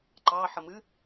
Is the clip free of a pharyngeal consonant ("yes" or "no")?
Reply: no